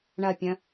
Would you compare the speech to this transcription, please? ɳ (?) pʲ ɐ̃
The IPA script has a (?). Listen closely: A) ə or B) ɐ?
B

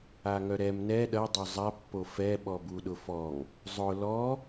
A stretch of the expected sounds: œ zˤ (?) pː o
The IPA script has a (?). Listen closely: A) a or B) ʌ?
A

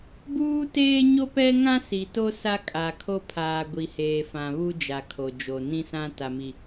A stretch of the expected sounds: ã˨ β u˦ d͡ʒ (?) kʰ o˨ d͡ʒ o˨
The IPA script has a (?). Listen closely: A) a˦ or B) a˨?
B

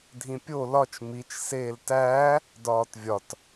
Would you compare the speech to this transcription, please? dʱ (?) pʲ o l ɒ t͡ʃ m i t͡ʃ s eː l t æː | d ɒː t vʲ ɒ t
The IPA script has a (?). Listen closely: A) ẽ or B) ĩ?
B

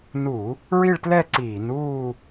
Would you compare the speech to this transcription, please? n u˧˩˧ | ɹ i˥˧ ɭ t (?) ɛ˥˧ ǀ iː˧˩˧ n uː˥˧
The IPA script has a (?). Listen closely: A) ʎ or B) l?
B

